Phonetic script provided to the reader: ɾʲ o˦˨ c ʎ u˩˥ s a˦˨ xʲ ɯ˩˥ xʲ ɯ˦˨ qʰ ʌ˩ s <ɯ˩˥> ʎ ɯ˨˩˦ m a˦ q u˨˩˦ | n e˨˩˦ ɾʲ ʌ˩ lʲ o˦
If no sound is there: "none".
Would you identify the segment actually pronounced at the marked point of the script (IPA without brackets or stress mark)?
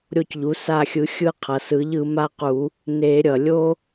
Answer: ɯ˩˥